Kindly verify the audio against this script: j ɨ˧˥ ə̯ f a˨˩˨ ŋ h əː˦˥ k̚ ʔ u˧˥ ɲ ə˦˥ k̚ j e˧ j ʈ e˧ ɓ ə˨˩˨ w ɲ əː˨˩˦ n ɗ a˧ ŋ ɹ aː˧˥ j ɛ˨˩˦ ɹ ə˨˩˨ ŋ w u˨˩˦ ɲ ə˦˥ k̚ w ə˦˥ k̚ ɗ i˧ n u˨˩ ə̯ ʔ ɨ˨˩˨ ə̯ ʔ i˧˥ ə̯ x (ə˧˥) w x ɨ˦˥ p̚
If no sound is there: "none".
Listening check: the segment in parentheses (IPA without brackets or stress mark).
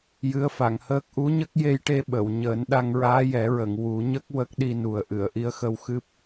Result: ə˧